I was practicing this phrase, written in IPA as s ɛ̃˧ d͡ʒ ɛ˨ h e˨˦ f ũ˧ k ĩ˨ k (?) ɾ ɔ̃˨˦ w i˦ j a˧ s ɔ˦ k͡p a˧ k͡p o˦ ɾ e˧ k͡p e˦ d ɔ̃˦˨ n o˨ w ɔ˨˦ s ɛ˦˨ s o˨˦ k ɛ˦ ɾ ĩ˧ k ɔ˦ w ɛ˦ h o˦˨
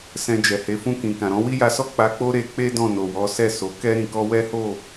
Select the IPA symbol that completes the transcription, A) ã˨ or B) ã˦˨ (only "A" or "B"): A